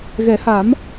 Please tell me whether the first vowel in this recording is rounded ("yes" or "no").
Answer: no